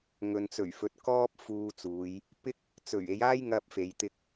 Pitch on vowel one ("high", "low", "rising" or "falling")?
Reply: low